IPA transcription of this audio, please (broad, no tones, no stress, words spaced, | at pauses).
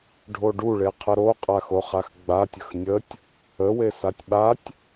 ɖʱoɖuɭe qʰəɾoqʼa xoχaxɡ͡batʲəx nʲətʲ | əwe satʲɓatʲ